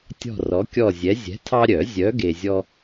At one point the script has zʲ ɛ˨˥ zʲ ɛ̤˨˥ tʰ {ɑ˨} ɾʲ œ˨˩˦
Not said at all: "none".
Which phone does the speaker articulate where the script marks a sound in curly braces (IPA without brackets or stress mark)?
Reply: ɑ˦